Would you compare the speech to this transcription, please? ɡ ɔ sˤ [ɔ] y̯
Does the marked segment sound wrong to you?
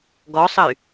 yes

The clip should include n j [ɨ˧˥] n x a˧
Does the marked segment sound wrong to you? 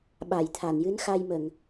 no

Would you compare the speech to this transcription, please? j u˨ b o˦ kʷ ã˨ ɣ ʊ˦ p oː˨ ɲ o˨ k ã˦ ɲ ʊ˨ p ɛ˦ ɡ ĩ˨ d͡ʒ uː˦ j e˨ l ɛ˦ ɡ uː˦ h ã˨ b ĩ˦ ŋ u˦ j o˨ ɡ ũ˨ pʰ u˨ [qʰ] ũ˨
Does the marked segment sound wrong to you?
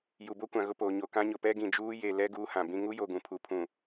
yes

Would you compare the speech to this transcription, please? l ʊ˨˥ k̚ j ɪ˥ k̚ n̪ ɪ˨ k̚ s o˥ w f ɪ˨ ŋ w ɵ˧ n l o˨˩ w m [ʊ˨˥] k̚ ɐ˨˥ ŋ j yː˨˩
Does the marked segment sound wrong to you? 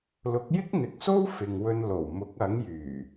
no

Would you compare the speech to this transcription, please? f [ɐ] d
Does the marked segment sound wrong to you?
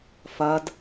no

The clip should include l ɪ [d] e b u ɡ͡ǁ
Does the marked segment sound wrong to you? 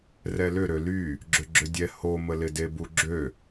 no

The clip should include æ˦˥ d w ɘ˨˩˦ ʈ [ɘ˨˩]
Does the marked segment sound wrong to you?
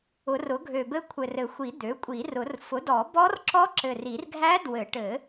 yes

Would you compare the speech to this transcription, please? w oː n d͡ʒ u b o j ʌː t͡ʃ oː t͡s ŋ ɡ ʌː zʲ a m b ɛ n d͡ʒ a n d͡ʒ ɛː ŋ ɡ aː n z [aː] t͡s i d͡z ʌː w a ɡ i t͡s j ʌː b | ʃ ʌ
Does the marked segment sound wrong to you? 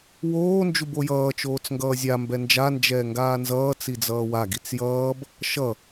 yes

